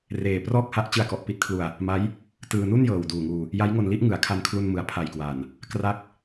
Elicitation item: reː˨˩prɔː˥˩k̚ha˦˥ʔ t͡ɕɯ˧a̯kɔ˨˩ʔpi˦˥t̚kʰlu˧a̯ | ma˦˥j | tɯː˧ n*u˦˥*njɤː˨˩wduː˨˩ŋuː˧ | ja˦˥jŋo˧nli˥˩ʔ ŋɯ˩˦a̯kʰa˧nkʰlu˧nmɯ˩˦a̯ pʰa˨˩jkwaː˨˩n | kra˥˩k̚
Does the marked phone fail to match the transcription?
yes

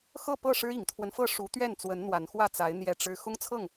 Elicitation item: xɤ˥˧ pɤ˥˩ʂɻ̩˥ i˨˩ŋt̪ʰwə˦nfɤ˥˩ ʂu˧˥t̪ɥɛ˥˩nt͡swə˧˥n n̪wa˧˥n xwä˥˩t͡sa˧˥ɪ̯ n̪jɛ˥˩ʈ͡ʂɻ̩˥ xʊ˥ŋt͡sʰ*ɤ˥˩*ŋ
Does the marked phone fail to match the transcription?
no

